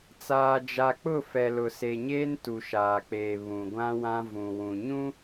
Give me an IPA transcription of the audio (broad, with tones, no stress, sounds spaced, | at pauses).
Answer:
t͡s aː˨ d͡ʒ a˨ k͡p ʊ˦˨ f ɛ˨ l ʊ˨ s e˨ ɲ eː˦ n t u˨ ʃ aː˨ k͡p eː˨ β ũ˨ ɡʷ ã˦ w ã˦ v ũ˨ w ũ˨ ɲ ũ˦